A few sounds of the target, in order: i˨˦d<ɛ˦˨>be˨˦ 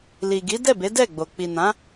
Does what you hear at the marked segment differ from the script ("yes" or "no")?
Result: no